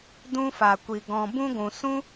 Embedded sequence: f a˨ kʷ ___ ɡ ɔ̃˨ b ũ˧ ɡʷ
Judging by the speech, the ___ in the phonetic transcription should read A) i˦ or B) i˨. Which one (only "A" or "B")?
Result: B